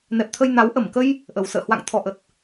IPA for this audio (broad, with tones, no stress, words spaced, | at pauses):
nɛ˨˩p̚t̪ʰə˧j na˨˦w ʔə˧˩mkə˧j | ʔə˨˩w sə̰ː˧˨hwa̰˧˨ŋ t̪ʰɔ˨˩ʔə˨˩t̚